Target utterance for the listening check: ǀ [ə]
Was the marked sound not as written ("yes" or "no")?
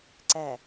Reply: yes